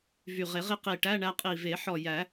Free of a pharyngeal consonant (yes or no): no